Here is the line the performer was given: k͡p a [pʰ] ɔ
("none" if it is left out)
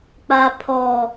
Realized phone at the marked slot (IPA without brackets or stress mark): pʰ